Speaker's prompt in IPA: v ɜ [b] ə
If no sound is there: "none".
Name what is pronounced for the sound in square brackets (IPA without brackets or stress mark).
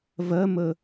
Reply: m